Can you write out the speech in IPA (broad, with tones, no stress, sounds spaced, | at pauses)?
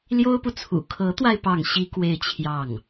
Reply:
l j o˥ ʊ̯ p u˨ t͡sʰ ṵ˨˩ kʰ ɤ˧˥ t̪ w a˧ ɪ̯ p ɑ˥˩ ŋ ɕ i˥ k w e˥˧ ɪ̯ t͡ɕʰ j ɑ˥˩ ŋ